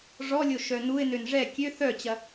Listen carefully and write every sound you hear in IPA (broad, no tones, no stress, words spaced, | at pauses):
ʐɔlʲo ʃœnuɪ̯nøn ʐɛ kʲø θœt͡ɕɐ